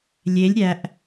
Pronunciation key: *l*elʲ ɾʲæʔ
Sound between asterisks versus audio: incorrect: lʲ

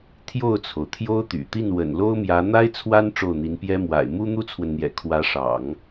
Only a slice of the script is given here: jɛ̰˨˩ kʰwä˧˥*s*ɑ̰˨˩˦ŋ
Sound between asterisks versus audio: incorrect: ʂ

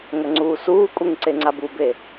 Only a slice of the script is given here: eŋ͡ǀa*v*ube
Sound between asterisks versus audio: incorrect: b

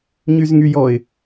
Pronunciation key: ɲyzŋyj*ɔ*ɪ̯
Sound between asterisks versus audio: correct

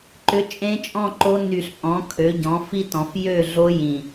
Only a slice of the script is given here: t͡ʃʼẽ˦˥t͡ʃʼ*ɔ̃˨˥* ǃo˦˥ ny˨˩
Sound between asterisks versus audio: incorrect: ɔ̃˥˨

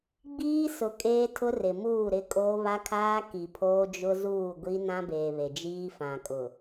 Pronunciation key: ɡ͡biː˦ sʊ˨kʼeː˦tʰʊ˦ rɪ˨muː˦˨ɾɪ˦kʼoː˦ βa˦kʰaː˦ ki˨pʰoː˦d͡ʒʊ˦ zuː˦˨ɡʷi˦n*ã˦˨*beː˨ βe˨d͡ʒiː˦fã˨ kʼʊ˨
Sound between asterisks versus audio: incorrect: ã˦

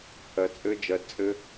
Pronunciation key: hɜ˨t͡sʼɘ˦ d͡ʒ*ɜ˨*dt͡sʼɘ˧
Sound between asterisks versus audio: correct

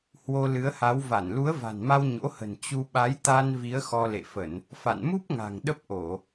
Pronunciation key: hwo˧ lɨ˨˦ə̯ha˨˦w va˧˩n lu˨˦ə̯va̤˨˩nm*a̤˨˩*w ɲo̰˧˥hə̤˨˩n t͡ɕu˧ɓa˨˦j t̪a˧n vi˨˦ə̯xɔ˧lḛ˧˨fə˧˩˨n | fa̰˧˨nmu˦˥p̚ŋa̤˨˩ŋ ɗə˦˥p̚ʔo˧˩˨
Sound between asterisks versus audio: incorrect: a˧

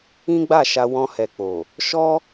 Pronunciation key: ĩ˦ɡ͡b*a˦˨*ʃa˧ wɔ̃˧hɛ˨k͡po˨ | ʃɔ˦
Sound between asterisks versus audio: correct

